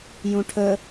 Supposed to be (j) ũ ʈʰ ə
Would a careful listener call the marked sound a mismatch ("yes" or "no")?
no